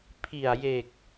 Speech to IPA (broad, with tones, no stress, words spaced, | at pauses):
pʰi˨˩a̯je˨˩k̚